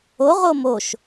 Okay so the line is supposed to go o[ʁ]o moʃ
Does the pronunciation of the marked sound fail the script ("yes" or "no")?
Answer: no